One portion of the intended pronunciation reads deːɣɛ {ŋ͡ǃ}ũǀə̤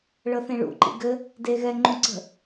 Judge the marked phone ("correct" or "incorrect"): correct